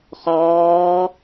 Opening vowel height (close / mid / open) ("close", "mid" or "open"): mid